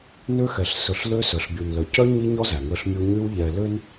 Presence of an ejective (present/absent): absent